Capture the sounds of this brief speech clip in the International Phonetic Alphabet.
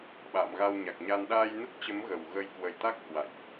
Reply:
ɓ a̰ː˧˨ m ɣ a˧ w ɲ a˨˩ k̚ ɲ a˧ n ɗ aː˧ j n ə˦˥ t̚ t͡ɕ ə˨˦ m ɣ ə˨˩ w ɣ ə˧ j k w ə˧˩ j t̪ a˦˥ k̚ h w a̰˧˨ j ʔ

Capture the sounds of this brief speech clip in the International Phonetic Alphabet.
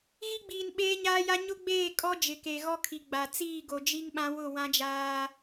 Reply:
ɣ i˦ ɡ͡b iː˨ n ɓ eː˦ ɲ aː˦ j a˦ ɲ ʊ˦ ɡ͡b eː˦˨ kʼ ɔ˦ d͡ʒ ɪ˨ k e˨ ɣ ɔ˦ kʰ i˨ ɡ͡b a˨ t͡s iː˦˨ ɡ o˨ d͡ʒ i˦ ŋ ɓ ã˦ w ʊ˦˨ w ã˦ d͡ʒ aː˦

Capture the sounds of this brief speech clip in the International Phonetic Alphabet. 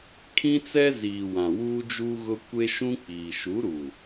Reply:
kʰ ĩ˦ t͡s ɛ˦ z iː˨ w ã˨ w uː˦ d͡ʒ uː˦ ɣ ʊ˦ kʷ e˦ ʃ ũ˦ k͡p iː˨ ʃ u˨˦ ɾ u˨

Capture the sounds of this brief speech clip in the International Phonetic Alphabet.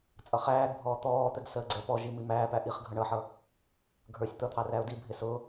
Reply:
t͡sʼ ʌ χ æː ɡ bʱ ɔː t̪ ɔː t̪ ɛ ɡ s əː ɡ͡ǀ ɛ p ɔ ʒ i m i m æː p æ ʔ i χ ɡʱ ʌ ɳ ʌ ħ ʌ | ɡʱ ə˞ sʲ t̪ ʌ t̪ʰ ɑ r æ ʊ̯ d i bʱ ɪ s ʊ

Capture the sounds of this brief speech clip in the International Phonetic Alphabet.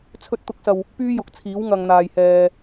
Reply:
t͡sʰ ɵ˨ t̚ t̪ ʊ˨˥ k̚ s ɐ˨ w | p yː˥ j ʊ˨˥ k̚ t͡sʰ iː˨˥ w ŋ ɐ˨ ŋ n̪ aː˨ j h ɛː˧

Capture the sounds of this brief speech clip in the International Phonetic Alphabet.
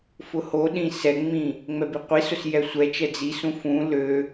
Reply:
f ʊ h o ɗ ĩ s ɛ ŋ͡m ĩ | ŋ͡m ɛ b i qʷ i s ʊ s j ɛ sʷ ɛ t͡ʃ ɛ d͡z i s ũ f ũ l ø

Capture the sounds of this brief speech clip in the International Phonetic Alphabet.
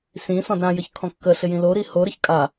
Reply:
s ĩ s ɔ̃ d ɾ ã j ə ç kʰ ɔ̃ kː ə ɬ ɪ j ĩ l o ɾ i h o ɾ ə ç kʼ a

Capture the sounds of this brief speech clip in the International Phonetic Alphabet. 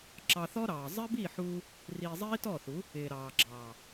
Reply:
ǁ ɑ˧ θ ɔ˦ ɾ ɑː˨ zˤ ɪː˦ b iː˦˨ ħ uː˧ | r iː˧ zˤ iː˦ t ɔ˦˨ θ u˨˦ | ɪː˨ ɾ ɑː˨ ɡ͡ǁ ɑː˨

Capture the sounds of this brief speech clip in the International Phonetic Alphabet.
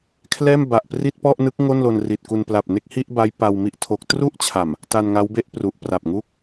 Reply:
kʰ l ɛː˥˩ m b a˨˩ ʔ p r i˥˩ t̚ p ɔ˥˩ ʔ n ɯ˦˥ k̚ ŋ o˥˩ n l o˧ n r i˨˩ t̚ k u˧ n p l a˨˩ p̚ n e˥˩ k̚ h i˥˩ ʔ b a˦˥ j p a˧ w m i˥˩ ʔ tʰ o˦˥ k̚ t r u˥˩ ʔ t͡ɕʰ a˨˩ m | t a˧ n ŋ a˦˥ w b e˥˩ ʔ p r u˨˩ ʔ p r a˨˩ p̚ ŋ u˦˥ k̚

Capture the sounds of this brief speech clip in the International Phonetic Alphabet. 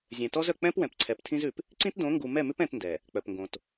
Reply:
zʲ ɛ̃˨ t ɔ˦ z œ˨ k͡p ɛ̃˦ p w ɛ̃˨ p ǀʰ ɛ˨ p tʰ ĩ˦ z ʉ˨ p | ǀ ĩ˦ t d õ˨˦ ŋ ɡ u˨ m ɛ˦˨ m ʉ˦ p ɛ̃˦ t n d ɛ˨ | k͡p œ˨ p ŋ ɡ õ˨ t

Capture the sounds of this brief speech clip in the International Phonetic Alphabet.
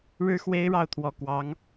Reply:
ɻ ɻ̩˥ x w e˥ ɪ̯ ɻ ɑ˥˩ ʊ̯ t̪ʰ w ɔ˨˩ k w ɑ˧˥ ŋ

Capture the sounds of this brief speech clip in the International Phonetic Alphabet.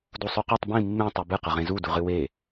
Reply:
d u sˤ ʉ q u tˤ b ĩ mː ẽ tˤ ʉ b ɨ q ɐ ʁ ẽ z u d u ʁ ɨ w e

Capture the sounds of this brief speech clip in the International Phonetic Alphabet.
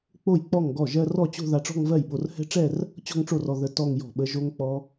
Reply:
k͡p o˥˩ j k͡p ɔ˥˩ ŋ ɡ ɔ˥˩ ʒ ɜ˥˧ r ɔ˥˩ t͡ɕ o̤˥˧ ð a˧ ʈ͡ʂ ɔ̤˥˧ ŋ v ɜ˥˩ j ɓ o˧ r h ɛ̤˦˥ ʈ͡ʂ ɛ˥˧ r | t͡ɕ ɔ̤˥˧ ŋ ʈ͡ʂ o˥˩ r ɔ˧ ð ə˧ t ɔ˥˧ ŋ j ɔ̤˥˩ ɓ ə˦˥ ʒ o˦˥ ŋ k͡p ɔ˦˥

